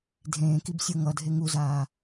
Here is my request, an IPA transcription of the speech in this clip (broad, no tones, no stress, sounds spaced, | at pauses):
dʱ ẽː k i b sʲ o ŋ ʌ dʱ e ŋ u z aː